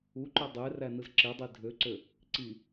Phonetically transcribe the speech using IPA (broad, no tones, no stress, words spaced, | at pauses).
uǃo dˤe rænɯzǁedˤi dʱøǀø | ǀi